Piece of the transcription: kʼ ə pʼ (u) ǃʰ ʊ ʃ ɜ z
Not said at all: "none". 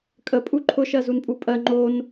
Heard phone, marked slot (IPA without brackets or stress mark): u